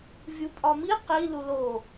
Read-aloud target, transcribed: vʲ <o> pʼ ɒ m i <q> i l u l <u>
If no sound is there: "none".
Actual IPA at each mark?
u, q, o

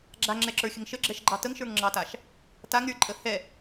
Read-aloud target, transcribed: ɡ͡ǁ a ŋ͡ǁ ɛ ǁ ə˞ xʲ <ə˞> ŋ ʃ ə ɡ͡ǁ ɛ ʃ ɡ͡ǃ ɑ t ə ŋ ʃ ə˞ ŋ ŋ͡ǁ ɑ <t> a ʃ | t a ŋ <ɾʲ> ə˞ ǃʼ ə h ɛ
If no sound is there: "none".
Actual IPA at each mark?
ə, t, ɾʲ

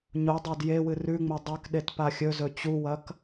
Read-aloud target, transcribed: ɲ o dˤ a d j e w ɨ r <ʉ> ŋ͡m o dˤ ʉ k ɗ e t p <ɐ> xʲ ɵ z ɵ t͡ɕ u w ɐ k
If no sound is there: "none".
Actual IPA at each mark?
ʉ, a

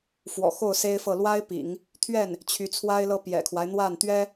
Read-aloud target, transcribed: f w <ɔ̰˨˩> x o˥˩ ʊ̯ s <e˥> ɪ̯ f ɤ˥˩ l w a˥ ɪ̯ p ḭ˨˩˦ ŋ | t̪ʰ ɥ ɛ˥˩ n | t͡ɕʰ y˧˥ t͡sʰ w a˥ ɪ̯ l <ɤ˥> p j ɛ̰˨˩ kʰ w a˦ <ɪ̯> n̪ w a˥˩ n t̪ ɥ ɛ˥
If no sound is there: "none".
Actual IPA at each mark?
ɔ̰˨˩, e˥, ɤ˥, ɪ̯

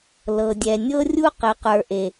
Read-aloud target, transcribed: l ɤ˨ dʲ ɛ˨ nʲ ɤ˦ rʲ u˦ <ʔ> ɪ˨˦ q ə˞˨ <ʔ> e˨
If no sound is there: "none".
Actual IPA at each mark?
q, ʔ

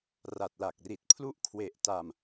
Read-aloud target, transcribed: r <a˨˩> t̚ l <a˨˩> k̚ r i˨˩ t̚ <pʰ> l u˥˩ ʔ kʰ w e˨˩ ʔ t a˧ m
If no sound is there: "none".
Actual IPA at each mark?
a˨˩, a˨˩, pʰ

